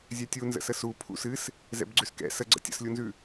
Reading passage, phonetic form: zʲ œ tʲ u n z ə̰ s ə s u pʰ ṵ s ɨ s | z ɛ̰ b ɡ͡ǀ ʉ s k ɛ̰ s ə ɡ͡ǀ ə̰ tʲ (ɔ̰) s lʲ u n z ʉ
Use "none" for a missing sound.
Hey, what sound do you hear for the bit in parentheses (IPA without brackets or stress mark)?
ə̰